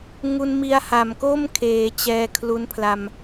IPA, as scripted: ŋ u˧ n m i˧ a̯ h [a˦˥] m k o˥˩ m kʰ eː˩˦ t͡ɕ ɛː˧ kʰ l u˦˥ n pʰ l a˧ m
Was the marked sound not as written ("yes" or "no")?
yes